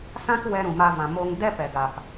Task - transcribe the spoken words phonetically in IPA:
sã˦k wɛ˧ɾũ˨ ma˧vã˨ mo˧ŋ dɛ˦pɛ˨ɡa˨p

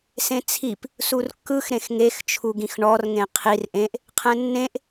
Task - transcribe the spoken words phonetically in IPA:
sẽt͡sʰip | surkːɯx ɾẽxŋext͡ʃʰuɡĩx ɳɔrŋẽ qʰir ʔẽʔ | qʰɛ̃nːẽʔ

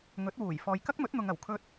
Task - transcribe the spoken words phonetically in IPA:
ŋɵ˨˥t̚wuː˨˩j fɔː˨jkɐ˥k̚mɵ˨˥t̚n̪ʊ˨ŋ ɐ˨˩wkʰɵ˧t̚

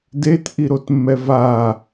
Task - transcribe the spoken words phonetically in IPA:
detʔi ɾotmːɛva

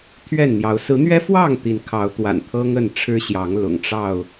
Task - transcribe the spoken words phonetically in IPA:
t̪ʰɥɛ˥˨nn̪jɑ˨˦ʊ̯ sɹ̩˨˦n̪ɥɛ˦fwɑ˥˨ŋ t̪i˨˦n kʰɑ˨˦ʊ̯t̪wa̰˨˩nt̪ʰɤ˦ŋ ə˥˨nʈ͡ʂʰɻ̩˦ɕjɑ˨˦ŋ lʊ̰˨˩ŋʈ͡ʂɑ˥˨ʊ̯

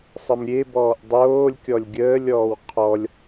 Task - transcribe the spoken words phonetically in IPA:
sˤəmɾʲebɔːʔ dˤoːlʲkʲɔlʲ ɡʲəːlʲɔːw qʰɔlʲ

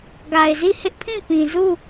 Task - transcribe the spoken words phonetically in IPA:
ɡa˨ɪ̯zi˦˨ hɪ˦ʔpʰĩ˦˨pĩ˨ zu˦˨

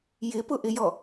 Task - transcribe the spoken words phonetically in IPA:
jɪpʊʔɪjɔ

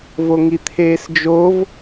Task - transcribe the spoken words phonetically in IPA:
voŋit̪ʰeːsd͡ʒov

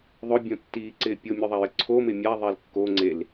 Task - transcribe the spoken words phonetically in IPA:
ðˤʊbʲõtːiːǀɪː pʲomʲoðˤajɪ ǀʰomɪ mʲaðˤɛl kːoŋ͡ǀel

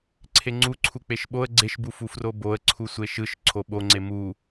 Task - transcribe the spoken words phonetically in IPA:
ǀʰeŋ͡ǀuǀʰu k͡peʃɓoə̯ ɡ͡ǀeʃbufu froboə̯ ǀʰusʷeʃɯʃ ǀʰoɓoŋ͡ǀe mu

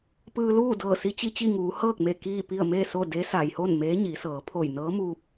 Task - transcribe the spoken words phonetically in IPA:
pɯː˧luː˥˨dɤː˧˩ si˧˥t͡ɕi˧t͡ɕi˥˨ŋuː˩˧ hɤː˥˨k̚me˧˩ kiː˥˨pi˥˨ə̯ me˥˨so˥˨ de˧˥sa˩jho˥˨n meː˧˥ɲi˩˧sɤː˩˧ pʰo˧˩jnɤː˧˥muː˧p̚

